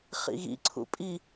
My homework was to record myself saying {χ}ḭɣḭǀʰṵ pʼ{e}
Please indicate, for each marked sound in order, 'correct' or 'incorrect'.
correct, incorrect

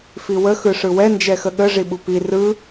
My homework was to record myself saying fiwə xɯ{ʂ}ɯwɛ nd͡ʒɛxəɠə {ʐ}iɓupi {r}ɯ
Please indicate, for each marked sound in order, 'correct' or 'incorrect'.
correct, correct, correct

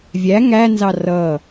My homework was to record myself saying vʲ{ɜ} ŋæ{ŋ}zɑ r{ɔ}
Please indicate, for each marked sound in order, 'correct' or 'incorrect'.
incorrect, incorrect, incorrect

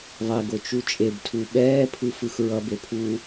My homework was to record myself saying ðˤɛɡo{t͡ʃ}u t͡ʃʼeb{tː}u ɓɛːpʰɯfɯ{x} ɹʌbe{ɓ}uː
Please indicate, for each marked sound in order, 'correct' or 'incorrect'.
correct, incorrect, correct, incorrect

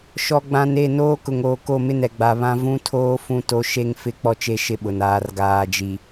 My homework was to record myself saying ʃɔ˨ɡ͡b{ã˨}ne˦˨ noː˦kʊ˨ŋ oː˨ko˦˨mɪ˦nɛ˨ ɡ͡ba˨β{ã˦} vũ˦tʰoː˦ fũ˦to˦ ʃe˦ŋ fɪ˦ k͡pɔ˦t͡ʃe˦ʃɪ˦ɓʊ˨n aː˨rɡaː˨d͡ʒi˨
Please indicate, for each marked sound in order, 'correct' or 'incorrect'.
correct, correct

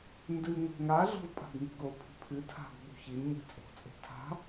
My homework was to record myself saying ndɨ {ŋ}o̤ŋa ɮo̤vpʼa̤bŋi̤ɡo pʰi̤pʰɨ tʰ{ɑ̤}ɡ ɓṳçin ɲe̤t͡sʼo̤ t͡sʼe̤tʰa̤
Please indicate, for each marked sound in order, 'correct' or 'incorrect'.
correct, incorrect

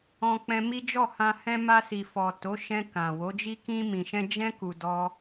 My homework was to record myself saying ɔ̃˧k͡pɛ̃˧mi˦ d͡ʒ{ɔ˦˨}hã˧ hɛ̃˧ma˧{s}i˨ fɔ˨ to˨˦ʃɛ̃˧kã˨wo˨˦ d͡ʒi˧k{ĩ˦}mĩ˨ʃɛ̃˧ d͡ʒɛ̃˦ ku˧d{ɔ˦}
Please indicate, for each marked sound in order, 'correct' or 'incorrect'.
correct, correct, incorrect, correct

